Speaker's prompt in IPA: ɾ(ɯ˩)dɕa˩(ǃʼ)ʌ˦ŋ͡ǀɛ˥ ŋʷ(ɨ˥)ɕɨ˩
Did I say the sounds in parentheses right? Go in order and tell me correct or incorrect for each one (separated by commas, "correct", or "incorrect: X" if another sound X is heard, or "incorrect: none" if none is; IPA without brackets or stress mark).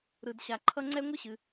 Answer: correct, incorrect: ǃʰ, correct